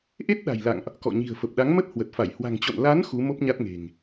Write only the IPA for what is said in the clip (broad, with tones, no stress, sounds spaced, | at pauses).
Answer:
ʔ e˦˥ t̚ ɗ a̤˨˩ j l a̰˧˨ ŋ ʔ | k ɔ̰˧˨ ɲ i̤˨˩ ə̯ f ə˨˩ p̚ ɗ a˨˦ ŋ m ə˦˥ t̚ h w ə˨˩ t̚ f a˧˩ j h w a̤˨˩ ŋ t͡ɕ o̰˧˨ n l a˨˦ n x u˨˦ m o˦˥ p̚ ɲ a˦˥ t̚ ŋ e̤˨˩ ŋ